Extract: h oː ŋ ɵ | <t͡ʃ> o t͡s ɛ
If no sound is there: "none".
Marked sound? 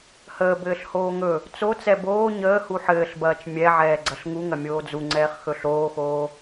t͡s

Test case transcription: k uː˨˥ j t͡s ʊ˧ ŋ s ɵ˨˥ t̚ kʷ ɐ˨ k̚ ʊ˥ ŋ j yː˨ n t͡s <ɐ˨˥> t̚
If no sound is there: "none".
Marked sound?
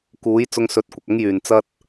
ɐ˥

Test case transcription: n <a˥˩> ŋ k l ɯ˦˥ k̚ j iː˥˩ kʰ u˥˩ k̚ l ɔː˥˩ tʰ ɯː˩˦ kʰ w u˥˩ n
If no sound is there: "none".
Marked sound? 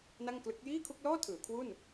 a˥˩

